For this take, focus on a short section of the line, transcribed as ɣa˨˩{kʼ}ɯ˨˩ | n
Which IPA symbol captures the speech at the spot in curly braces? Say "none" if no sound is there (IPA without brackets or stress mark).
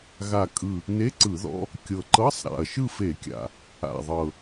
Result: kʼ